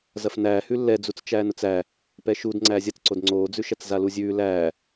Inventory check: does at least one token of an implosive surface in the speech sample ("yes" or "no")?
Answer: no